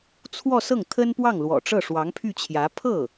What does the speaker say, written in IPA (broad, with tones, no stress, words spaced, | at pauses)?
t͡sʰwɔ˥˧ sɤ˥˩ŋt̪ʰə˥npwɑ˥˩ŋlwɔ̰˨˩ ʈ͡ʂɤ˥˩ʂwɑ˧˥ŋpʰy˥˩t͡ɕʰjä˧˥ pʰɤ˥˩